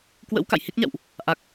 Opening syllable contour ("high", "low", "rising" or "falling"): rising